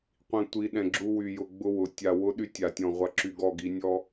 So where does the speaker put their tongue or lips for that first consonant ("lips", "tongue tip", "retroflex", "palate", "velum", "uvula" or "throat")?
uvula